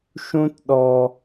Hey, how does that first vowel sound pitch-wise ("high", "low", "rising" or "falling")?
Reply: high